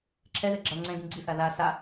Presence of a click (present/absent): present